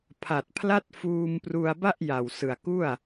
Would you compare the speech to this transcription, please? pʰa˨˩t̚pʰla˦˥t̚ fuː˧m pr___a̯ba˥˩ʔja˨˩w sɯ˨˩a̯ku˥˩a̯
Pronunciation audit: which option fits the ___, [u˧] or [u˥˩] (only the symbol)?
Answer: u˧